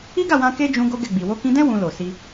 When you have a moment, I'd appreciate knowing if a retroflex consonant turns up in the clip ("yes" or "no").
no